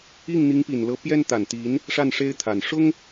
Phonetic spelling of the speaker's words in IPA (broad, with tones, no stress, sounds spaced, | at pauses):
i˥˩ ŋ n̪ i˧˥ ŋ p i˨˩ n l ɤ˧˥ p j ɛ˥ n t̪ a˨˩ n t̪ i˧˥ n | ʂ a˥˩ n ʂ e˥ ɪ̯ t̪ʰ a˨˩ n ʂ ʊ˥ ŋ